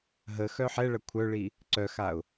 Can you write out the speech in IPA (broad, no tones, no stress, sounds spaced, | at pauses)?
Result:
ɦ ə x œ ħ ɛ ɭ ɐ kʷʰ œ ɭ i | ǀ œ x a ʊ̯